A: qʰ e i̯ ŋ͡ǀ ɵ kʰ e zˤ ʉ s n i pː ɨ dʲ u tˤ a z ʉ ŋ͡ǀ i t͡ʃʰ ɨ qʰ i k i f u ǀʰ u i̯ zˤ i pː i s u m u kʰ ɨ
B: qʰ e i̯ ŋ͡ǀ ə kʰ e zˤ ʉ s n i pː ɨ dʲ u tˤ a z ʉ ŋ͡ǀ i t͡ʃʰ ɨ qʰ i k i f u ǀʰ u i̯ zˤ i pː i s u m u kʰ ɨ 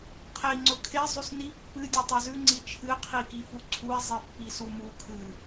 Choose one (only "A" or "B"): A